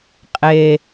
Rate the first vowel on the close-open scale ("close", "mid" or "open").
mid